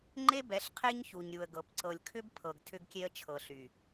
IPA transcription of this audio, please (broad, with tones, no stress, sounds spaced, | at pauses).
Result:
ŋ͡ǃ e˦ b ɛ˨˦ ɬ qʰ e˦ ɲ ç u˨ ɲ ɾʲ u˨ ə̯ ɡ ɤ˨ p ǀ ɤ˨ lʲ kʰ ʏ˦ b pʰ ɤ˨ ɡ tʰ ʏ˦ ɡ kʲ e˦ ə̯ t͡ʃʰ ɤ˨ ɬ y˨